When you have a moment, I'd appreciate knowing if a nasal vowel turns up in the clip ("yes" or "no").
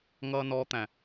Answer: yes